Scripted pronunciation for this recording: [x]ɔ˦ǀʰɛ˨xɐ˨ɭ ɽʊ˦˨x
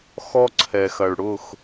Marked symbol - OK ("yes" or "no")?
yes